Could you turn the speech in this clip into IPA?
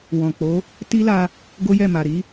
w ɔ̃˨ k͡p o˨˦ | t i˦ l a˧ | ɡ o˦ j ɛ˦˨ m a˨ ɾ i˨˦

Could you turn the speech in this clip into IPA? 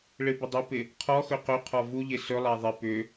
ɭ ɪ b ɪ dˤ ʏ p ɪ | qʰ ɔ x ɵ q ɵ qʰ ɔ v u ʎ ɪ s ɵ lˠ a ðˤ ɪ p ʏ

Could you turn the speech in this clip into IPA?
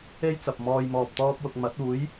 e˥ j t͡s ɐ˨ p̚ m ɔː˧ j m ɔː˧ p̚ t̪ ɔː˥ p̚ w ʊ˧ k̚ m ɐ˨˥ t̚ uː˨˥ j

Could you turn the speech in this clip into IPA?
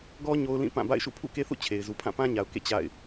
ɡ ɔ˦ ɲ o˦ ʊ̯ l ĩ˦˨ p ã˦˨ b a̰˦˨ ɪ̯ ʃ ṵ˦˨ pʰ ṵ˦˨ k e˦ θ ṵ˦˨ t͡ɕʰ e˨ ɪ̯ z u˨ pʰ ã˦˨ p ã˦ ɲ a˨ ʊ̯ k ḛ˦˨ t͡ɕ a̰˦˨ ɪ̯

